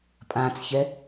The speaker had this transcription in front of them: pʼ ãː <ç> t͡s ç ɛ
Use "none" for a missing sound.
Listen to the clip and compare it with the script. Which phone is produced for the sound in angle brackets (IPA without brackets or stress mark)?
none